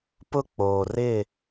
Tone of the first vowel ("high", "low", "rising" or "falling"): high